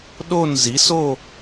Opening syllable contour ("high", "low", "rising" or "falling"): falling